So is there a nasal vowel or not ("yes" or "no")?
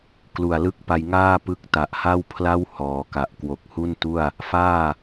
no